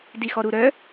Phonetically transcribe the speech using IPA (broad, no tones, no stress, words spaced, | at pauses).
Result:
dixɔɾuɾœ